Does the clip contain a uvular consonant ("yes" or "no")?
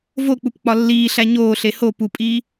no